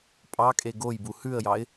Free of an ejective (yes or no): no